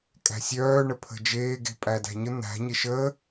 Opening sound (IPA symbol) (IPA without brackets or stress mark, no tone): kʼ